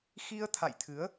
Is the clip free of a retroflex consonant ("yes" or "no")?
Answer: yes